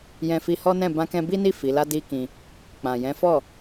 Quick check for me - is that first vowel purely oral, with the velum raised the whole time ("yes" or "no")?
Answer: no